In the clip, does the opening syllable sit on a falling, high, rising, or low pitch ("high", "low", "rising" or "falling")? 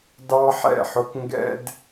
high